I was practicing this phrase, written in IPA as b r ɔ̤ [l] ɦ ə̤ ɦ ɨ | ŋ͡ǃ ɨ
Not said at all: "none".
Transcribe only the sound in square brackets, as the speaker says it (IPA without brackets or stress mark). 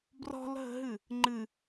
l